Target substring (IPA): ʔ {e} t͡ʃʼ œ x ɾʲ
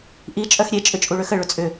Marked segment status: incorrect: i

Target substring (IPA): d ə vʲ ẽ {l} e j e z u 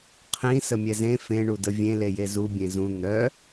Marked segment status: correct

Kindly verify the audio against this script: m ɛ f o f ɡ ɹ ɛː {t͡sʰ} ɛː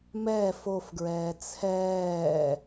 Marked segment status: correct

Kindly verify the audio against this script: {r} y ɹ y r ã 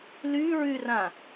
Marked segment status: incorrect: l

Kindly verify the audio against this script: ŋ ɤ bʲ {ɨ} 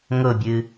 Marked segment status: correct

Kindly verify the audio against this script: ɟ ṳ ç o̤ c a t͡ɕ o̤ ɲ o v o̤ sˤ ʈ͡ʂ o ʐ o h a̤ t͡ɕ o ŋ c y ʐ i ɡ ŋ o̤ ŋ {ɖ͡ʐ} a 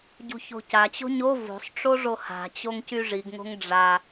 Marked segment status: correct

